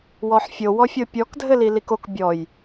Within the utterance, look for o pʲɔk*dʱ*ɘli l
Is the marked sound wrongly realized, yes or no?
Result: no